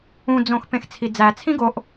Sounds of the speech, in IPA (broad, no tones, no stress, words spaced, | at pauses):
ũd͡zõx pẽxt͡sʰid͡zæt͡sʰĩ ɡoʔ